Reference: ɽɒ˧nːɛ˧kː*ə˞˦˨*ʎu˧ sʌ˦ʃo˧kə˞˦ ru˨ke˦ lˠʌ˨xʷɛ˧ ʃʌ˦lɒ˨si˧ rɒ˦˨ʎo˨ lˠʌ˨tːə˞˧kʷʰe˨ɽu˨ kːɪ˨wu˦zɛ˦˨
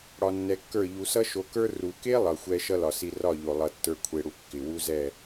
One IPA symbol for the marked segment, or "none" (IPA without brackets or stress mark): ə˞˦˨